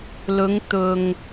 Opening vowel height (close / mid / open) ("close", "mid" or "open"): close